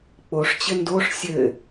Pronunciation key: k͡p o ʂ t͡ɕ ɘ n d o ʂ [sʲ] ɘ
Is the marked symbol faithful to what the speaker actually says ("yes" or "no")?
yes